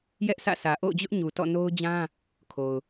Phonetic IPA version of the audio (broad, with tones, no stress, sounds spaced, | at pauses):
j ɛ˦ ʔ s ä̰˦˨ s ä˨ ʔ o̰˦˨ ʊ̯ d͡ʑ ʊ˦ ʔ ɲ u˨ t ɔ̰˦˨ n o˦ ʊ̯ d͡ʑ ã˦ | kʰ o˨ ʊ̯